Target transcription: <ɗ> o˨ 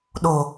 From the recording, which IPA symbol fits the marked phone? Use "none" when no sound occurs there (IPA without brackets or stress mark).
ɗ